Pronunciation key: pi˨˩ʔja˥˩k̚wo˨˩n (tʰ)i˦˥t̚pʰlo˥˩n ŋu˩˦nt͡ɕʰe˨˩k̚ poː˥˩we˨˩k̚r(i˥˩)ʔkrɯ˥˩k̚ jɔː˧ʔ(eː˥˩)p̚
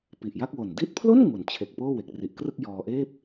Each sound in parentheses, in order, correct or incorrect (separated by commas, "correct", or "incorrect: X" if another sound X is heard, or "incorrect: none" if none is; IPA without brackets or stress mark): incorrect: d, incorrect: i˨˩, correct